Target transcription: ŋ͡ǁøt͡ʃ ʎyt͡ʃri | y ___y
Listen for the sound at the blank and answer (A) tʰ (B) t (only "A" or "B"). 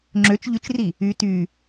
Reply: B